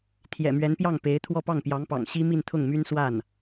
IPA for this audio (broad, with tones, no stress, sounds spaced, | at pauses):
t̪ʰ j ɛ̰˨˩ m ɥ ɛ˧˥ n p j ɑ˥˩ ŋ p e˧˥ ɪ̯ t̪ʰ w ɔ˥˧ p ɑ˥˩ ŋ p j ɑ˧˥ ŋ p ɑ̰˨˩ ŋ ɕ i˥ m i˥˧ n t̪ʰ ʊ˥˩ ŋ m y˥ n s w a˥˩ n